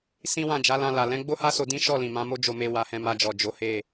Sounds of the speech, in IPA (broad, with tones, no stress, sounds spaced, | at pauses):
s ĩ˦ w ã˦˨ d͡ʒ a˨˦ l ã˧ l a˨ l ɛ̃˨˦ ɡ͡b o˦ h a˦ s o˧ d ĩ˦ ʃ ɔ˦˨ l ĩ˨ m ã˨˦ m o˦ d͡ʒ o˧ m e˧ w a˨ h ɛ̃˨ m a˧ d͡ʒ ɔ˨ d͡ʒ o˨˦ h e˦˨